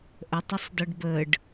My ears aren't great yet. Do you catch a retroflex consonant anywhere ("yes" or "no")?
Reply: yes